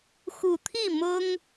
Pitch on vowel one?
low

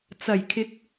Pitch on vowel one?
low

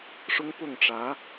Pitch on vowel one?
high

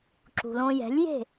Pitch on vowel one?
low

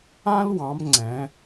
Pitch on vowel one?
high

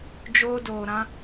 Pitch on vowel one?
high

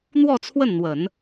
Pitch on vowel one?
falling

